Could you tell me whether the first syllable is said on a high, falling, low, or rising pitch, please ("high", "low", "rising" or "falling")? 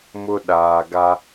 high